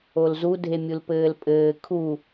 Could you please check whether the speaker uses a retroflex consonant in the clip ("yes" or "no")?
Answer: no